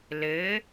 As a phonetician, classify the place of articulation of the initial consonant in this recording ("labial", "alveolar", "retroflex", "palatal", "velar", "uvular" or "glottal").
alveolar